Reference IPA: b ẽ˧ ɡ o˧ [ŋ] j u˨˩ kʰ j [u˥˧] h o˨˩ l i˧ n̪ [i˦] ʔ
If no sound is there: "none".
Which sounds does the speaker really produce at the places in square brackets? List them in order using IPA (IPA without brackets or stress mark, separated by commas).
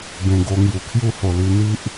ŋ, u˥˧, i˦